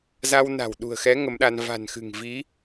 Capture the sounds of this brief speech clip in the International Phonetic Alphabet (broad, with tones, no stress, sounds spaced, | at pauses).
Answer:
z a˧ w n a̤˨˩ w ɗ ṳ˨˩ ə̯ x ɛ˨˦ ŋ ə˨˦ m ɗ a˧ n v a̤˨˩ n x ɨ̤˨˩ ŋ v i˨˦